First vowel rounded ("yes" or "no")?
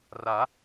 no